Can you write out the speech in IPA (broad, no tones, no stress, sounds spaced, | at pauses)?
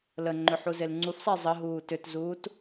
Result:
l ə ŋ͡ǃ ʏ ħ u z e l ŋ͡ǀ u f sˤ e zˤ ə ɦ uː t ʏ t z uː t